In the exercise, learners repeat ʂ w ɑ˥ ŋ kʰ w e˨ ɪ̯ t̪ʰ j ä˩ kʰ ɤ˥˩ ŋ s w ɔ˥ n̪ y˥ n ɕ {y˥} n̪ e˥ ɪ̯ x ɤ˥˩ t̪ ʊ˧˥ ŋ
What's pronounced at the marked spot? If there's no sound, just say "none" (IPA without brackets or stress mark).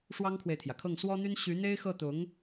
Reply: y˧˥